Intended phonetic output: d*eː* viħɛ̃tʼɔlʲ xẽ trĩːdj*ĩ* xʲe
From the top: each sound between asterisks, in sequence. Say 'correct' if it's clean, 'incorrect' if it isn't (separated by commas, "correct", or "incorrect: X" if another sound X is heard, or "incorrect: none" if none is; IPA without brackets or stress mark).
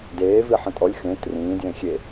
correct, incorrect: ẽ